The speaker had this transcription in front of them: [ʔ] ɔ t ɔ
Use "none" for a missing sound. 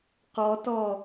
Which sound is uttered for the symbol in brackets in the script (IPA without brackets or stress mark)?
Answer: q